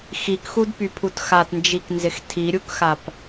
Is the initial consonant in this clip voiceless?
yes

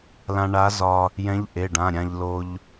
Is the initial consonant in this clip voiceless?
no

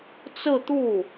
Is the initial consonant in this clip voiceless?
yes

